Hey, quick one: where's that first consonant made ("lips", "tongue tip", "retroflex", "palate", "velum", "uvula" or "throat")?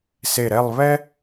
tongue tip